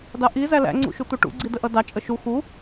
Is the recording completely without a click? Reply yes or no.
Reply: no